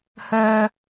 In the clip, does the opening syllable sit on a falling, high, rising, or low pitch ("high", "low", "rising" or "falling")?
low